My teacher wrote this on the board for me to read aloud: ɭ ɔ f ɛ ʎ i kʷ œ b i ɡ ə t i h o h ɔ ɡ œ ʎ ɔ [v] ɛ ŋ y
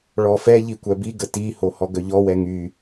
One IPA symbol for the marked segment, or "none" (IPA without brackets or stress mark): w